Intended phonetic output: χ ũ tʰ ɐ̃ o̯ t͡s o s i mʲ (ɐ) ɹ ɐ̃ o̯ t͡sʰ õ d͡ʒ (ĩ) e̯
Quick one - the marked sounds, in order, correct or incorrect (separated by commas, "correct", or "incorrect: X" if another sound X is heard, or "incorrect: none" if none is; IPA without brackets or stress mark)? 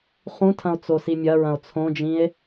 correct, correct